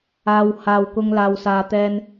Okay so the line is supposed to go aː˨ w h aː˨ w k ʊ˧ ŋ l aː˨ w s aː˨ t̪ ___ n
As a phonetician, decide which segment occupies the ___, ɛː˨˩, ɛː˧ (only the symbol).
ɛː˧